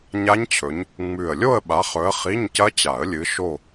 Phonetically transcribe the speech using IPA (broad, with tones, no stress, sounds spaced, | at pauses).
ɲ a˦˥ ɲ t͡ɕʰ ɵ˨˦ ɲ | ŋ͡m ʉ˨˩ ə̯ lʲ o˥˧ ə̯ ɓ a˨˦ χ ɵ˨˦ ə̯ χ i˧˥˧ ɲ c ɐ˦˥ t͡ɕ a˨˩˦ ə̯ lʲ ɨ˨˦ ʃ o˥˧